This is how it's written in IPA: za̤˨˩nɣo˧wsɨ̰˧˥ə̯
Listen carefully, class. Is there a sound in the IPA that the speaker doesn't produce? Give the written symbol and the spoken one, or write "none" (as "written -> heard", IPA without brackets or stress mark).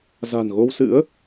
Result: none